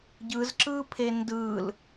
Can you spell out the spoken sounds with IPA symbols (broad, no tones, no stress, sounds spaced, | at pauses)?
ɟ ɯ z ǁ ɯ pʰ e n d ɯ l